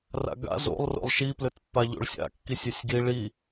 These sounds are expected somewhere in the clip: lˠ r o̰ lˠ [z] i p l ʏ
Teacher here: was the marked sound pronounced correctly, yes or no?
no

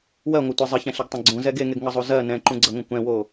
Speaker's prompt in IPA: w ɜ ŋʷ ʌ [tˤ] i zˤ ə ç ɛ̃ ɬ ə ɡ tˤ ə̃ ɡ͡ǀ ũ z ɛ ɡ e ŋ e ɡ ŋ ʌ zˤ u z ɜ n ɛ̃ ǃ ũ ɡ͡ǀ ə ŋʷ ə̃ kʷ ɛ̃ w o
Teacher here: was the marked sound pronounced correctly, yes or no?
no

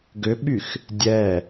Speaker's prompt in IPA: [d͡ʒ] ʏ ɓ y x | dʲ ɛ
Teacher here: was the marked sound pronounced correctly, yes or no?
no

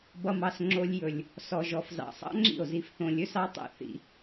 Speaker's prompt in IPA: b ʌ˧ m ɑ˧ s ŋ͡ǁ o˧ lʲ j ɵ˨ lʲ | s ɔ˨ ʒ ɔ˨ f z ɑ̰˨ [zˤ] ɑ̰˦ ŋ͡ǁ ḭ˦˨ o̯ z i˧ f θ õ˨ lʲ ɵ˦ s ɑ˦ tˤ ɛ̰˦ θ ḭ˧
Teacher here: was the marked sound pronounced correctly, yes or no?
no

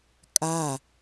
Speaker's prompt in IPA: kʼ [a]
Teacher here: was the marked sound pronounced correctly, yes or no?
yes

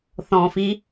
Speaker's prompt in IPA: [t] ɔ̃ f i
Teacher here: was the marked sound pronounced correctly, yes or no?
no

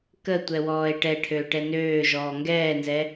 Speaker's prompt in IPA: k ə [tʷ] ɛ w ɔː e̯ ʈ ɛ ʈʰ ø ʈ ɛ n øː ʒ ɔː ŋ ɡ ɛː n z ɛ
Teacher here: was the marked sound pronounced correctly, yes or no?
yes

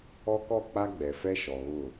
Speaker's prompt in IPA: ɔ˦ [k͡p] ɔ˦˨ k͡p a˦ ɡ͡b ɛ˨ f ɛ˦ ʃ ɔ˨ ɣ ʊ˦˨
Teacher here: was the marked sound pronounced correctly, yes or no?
no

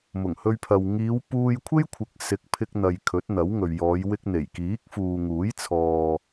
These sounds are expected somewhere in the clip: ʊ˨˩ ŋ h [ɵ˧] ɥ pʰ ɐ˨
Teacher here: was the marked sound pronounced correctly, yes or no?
yes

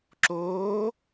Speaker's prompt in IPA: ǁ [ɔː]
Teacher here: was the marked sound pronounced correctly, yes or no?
no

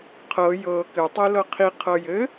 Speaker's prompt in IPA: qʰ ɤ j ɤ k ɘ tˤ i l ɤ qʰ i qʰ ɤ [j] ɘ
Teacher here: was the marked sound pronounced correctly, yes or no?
yes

